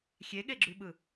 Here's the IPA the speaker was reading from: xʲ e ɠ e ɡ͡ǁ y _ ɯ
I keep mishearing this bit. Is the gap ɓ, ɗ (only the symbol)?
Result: ɓ